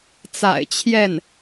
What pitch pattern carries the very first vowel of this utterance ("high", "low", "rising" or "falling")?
low